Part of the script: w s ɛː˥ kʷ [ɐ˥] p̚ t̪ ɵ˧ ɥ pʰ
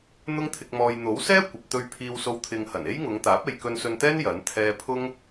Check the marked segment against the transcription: incorrect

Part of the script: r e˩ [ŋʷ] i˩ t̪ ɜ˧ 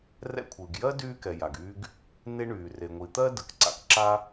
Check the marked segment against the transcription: correct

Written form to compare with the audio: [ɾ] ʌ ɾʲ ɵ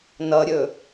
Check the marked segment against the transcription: incorrect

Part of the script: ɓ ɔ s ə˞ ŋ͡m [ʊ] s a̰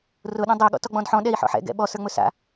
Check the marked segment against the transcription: incorrect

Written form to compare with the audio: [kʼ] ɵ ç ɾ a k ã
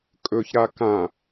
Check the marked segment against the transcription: correct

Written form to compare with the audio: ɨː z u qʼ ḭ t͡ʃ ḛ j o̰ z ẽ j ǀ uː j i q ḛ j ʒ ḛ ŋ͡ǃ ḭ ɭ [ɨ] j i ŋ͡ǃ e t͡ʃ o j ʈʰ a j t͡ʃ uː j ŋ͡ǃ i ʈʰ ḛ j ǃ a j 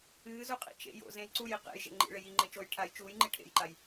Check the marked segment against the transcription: incorrect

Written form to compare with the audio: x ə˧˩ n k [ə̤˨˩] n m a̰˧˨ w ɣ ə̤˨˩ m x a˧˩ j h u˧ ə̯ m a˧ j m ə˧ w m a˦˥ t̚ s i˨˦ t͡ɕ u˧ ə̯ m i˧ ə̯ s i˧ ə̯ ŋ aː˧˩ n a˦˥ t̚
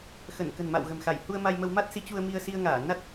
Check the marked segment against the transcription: correct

